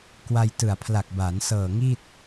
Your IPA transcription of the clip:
k w a˧ j t ɯ˨˩ a̯ pʰ l a˨˩ k̚ b aː˩˦ n s ɤː˨˩ ŋ iː˥˩ t̚

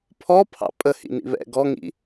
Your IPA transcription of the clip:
pʰ ɔ pʰ ɑ̰ pʼ ə h ḭ n ḭ β ɛ̰ ɡ ɔ ŋ ḭ

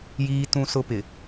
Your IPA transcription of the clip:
j iː˦ t ũ˦ s ʊ˦ p ɪ˨

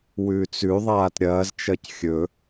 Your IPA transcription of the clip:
w ʉː t͡s ʉ ðˤ aː t ɾʲ ɐː z t͡ʃ ɐ c xʲ ɵ

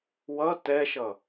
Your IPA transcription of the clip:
w ʌ t ɛ ʃ ʌ

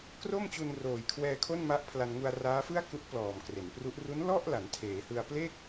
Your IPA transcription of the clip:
k r o˥˩ m t͡ɕ u˧ n r oː˨˩ j kʰ w ɛː˧ kʰ o˥˩ n m a˦˥ ʔ pʰ l a˧ n ŋ u˧ a̯ r aː˦˥ f ɯ˥˩ a̯ k u˦˥ ʔ p l ɔː˨˩ m k r e˩˦ n p r u˦˥ ʔ r u˦˥ n l ɔ˥˩ ʔ l a˩˦ n tʰ eː˩˦ h ɯ˧ a̯ p l e˥˩ k̚

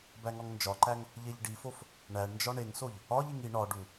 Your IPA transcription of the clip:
b æ ŋ ɒ ŋ n d͡ʒ ɒ ǃ æ ŋ | ʎ e ʎ ɖ i f o f | ɳ æ ɳ n d͡ʒ ɒ ɳ e ŋ s o ʎ | ɒ ʎ i ŋ i ɳ ɒ ɖ u

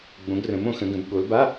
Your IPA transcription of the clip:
ɡ͡b õ˨˦ ɡ r ə̃˨˦ m õ˨˦ x ə̃˨˦ ɡ ə̃˨˦ b ɠ o˨˦ l b a˧˥˧

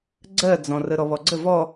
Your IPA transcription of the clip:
ɡ͡ǀ ɜ d͡z ɔ̃ r ə ɾ ɔ β ɔ ɡ͡ǀ ə v ɔ

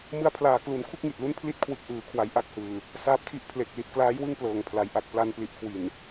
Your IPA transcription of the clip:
m ɯ˧ a̯ pʰ l aː˨˩ k l u˨˩ n kʰ u˥˩ k̚ ŋ i˨˩ t̚ l u˦˥ n pʰ l i˦˥ t̚ kʰ w ɯ˨˩ k̚ ʔ ɯː˩˦ kʰ w a˩˦ j ʔ a˥˩ k̚ h ɯː˨˩ | s aː˦˥ p̚ tʰ i˦˥ ʔ pʰ l e˨˩ k̚ l i˨˩ t̚ k l aː˦˥ j w ɯ˥˩ ŋ p l ɤː˨˩ ŋ pʰ l a˩˦ j ʔ a˨˩ k̚ p l a˧ n p l i˨˩ ʔ kʰ w i˨˩ n

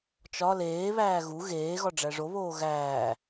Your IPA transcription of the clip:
t͡ʃ ɒ l eː β æː ɣ u ɣ eː ɣ ɒ ɖ͡ʐ æ ʐ o β oː ɣ æː

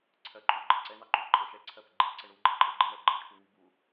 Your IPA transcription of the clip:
ǀʰ ɜ ǃʼ u ɡ͡ǃ ɪ ǀ ɛ n ɑ ǃ u ǃʼ ə ʃ ɛ ǀʰ ɜ p ɪ ɡ͡ǃ i ǀ ə ɳ u ɡ͡ǃ ɪ ǃʼ ə ɡ͡ǃ ɪ ɳ ɜ ɡ͡ǃ ɜ ʈʰ u ŋ i b u

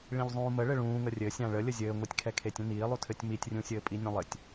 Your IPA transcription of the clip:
ɭ ĩ ʎ zˤ ũː m ə ɭ ɘ ɭ ũː ŋ ə rʲ ɘ sʲ ã ɭ ə lʲ ə zʲ ɘː ŋʷ i tʲ kʰ ɛ kʰ e tʲ ə̃ n iː lˠ u tʰ ɘ tʲ m i tʲ rʲ ũ sʲ ɘː pʼ i nʲ ũ lˠ ɘ tʲ

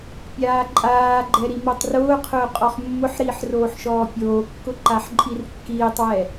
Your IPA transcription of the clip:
pʲ aː ǃʼ aː ɡ͡ǃ ɛ ɾ i m o tˤ r ʊː qʰ ʊː qʼ ɔ χ mː ʊ ħ ɾ iː ħ r oː ħ ʃ ɔː pʲ oː kː ʊ ǃ a ħ ǃʼ i r kː iː tˤ w ɛ

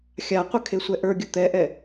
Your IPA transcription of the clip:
xʲ a qʷ ə kʰ e sʷ ɛ ʔ ə˞ ɡʲ ə t̪ ɛ ʔ ɛ

